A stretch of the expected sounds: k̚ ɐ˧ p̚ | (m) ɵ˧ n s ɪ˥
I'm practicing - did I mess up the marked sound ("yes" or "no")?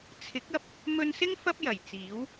no